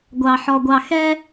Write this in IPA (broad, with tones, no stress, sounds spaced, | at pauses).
ɡʷ ɑ˨ ħ ɔ˨ ɡʷ ɑ˨ x ɛ˦